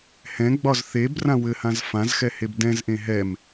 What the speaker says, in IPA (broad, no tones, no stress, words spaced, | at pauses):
hɛ̃ɡ͡bɒz θebrã wɘhãz fãzxɛheb dɛ̃zʔẽ ɦɛm